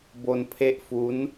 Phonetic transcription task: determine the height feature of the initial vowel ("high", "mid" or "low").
mid